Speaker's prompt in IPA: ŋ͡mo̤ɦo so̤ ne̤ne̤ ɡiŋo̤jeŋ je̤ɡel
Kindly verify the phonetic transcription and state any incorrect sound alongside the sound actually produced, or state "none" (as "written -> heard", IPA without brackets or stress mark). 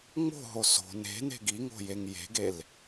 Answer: none